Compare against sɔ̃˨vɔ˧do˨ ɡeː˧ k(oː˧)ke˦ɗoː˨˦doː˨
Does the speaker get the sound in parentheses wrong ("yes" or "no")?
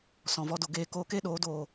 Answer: no